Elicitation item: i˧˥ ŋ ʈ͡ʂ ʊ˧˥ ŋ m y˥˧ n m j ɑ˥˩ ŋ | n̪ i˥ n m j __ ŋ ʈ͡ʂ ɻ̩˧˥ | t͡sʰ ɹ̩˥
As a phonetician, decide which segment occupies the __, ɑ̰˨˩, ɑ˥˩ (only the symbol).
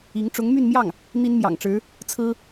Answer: ɑ̰˨˩